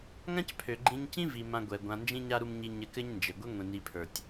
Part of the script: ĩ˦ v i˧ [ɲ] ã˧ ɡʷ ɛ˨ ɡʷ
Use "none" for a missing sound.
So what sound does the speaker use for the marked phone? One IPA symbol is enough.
m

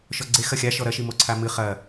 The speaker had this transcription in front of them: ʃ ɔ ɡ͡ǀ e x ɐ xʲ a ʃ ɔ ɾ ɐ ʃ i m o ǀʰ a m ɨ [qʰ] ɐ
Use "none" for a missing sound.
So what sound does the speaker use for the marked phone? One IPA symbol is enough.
χ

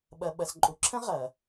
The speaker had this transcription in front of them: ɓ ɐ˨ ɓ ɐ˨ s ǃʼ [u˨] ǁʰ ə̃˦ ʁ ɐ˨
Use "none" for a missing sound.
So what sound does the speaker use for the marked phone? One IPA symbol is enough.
u˨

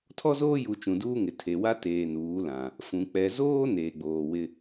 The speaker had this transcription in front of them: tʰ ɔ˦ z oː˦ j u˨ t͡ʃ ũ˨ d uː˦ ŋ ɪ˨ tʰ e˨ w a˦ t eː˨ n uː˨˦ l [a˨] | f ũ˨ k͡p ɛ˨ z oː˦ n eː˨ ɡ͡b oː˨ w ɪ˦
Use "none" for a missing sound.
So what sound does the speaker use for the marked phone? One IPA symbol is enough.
ã˨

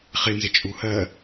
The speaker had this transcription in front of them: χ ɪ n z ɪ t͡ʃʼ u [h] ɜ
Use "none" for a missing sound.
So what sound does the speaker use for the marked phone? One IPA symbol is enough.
h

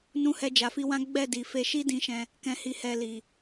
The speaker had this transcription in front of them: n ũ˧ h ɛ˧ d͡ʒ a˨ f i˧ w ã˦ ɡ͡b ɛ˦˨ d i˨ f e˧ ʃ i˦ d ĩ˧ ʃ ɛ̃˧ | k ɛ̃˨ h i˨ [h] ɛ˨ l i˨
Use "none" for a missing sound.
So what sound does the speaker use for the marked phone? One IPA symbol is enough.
h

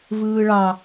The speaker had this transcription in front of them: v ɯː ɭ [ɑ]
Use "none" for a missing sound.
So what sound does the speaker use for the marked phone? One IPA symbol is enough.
ɑ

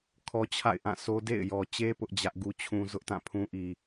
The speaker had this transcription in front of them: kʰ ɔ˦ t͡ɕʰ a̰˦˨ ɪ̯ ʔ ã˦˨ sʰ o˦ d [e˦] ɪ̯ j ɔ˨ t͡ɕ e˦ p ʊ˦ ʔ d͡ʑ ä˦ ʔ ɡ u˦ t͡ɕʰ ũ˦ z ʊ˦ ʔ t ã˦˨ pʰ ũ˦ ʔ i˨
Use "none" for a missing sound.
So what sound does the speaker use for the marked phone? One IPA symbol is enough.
ḛ˦˨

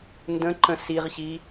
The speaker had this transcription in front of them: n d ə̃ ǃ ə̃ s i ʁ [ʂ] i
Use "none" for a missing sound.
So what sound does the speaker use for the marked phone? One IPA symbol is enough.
ɕ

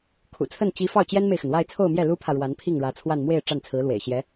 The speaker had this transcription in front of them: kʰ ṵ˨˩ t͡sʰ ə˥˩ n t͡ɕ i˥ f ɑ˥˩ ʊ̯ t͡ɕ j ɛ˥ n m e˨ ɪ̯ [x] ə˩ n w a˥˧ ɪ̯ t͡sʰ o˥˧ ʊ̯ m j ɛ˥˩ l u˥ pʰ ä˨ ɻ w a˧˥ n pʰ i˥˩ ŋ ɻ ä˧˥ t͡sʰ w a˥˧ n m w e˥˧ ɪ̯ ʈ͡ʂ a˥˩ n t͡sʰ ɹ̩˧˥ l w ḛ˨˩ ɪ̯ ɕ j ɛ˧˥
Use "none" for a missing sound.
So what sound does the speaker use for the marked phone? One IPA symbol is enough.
x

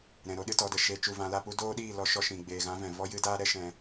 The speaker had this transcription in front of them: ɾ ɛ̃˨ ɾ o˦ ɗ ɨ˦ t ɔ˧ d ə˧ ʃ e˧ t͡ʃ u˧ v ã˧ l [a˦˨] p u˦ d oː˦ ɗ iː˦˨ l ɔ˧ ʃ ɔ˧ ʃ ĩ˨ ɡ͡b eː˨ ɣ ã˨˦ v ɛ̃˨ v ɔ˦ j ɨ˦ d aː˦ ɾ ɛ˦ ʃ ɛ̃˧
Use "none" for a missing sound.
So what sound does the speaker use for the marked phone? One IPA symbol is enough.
a˦˨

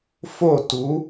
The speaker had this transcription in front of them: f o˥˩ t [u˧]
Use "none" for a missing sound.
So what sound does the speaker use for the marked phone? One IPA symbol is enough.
u˩˥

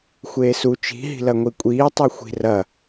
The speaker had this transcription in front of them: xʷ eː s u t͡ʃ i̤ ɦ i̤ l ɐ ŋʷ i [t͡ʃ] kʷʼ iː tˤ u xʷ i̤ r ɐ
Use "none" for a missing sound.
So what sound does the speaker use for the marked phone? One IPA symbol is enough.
none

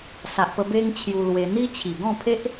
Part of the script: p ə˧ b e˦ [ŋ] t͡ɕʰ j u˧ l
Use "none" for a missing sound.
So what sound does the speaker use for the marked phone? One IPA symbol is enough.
ŋ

